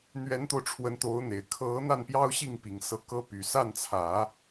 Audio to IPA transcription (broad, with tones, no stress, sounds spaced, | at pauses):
n̪ ɥ ɛ˧˥ n t̪ o˧ ʊ̯ ʈ͡ʂʰ w ə˧˥ n t̪ o˧˥ ʊ̯ n̪ e˨˩ ɪ̯ kʰ ɤ˧˥ n̪ a˥˩ n p j ɑ˥ ʊ̯ ɕ i˥˩ ŋ p i˨˩ ŋ s ɤ˧˥ k ɤ˥ p y˨˩ s a˥˩ n t͡sʰ ä˨˩˦